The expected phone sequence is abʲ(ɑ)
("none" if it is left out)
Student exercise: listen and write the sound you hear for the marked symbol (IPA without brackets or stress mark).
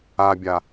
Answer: a